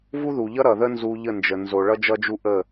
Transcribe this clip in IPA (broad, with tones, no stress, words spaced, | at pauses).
vu˦ðu˨ʎʌ˦ ɾʌ˨ðə˦nzu˧ʎə˦˨ nd͡ʒə˨nzo˨ ɭʌ˦d͡ʒʌ˦d͡ʒu˦ ʔə˦˨